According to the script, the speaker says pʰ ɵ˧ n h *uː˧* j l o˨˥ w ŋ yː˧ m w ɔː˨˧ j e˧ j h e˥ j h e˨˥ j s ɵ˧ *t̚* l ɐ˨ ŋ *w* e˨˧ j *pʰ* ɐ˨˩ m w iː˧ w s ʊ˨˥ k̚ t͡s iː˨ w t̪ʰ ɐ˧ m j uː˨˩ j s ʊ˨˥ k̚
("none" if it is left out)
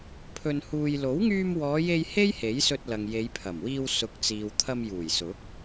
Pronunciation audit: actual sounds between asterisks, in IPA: uː˧, t̚, j, pʰ

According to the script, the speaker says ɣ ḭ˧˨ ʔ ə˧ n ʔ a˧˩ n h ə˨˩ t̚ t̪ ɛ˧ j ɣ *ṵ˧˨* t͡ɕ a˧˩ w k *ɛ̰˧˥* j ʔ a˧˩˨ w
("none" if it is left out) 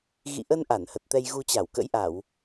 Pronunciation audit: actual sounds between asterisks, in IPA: u˧, ə̰˧˥

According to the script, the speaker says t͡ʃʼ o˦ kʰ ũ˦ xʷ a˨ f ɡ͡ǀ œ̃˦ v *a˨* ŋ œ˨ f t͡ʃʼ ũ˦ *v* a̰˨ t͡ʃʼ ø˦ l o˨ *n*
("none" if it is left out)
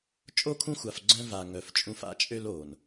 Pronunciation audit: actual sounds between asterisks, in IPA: a˨, f, n

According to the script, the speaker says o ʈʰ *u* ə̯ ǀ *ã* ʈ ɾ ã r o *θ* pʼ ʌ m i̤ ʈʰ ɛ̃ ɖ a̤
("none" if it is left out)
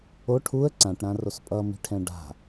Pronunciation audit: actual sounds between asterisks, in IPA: u, ã, s

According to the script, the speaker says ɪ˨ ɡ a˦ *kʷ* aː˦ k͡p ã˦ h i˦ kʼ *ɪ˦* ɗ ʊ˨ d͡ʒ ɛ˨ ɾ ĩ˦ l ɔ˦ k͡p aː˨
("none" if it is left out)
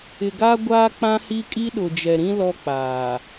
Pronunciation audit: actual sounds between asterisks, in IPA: ɡʷ, i˦

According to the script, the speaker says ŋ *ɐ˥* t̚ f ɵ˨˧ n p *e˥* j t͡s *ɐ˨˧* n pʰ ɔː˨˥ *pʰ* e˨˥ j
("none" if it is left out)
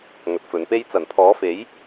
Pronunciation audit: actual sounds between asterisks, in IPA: ɐ˨˥, e˥, ɐ˨˩, f

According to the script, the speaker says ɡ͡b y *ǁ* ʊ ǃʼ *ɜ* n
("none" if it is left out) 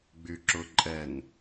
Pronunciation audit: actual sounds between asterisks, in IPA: ǁ, ɛ

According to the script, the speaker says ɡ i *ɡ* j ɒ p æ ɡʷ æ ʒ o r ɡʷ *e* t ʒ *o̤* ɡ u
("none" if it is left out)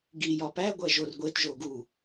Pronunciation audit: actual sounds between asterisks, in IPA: none, e, o

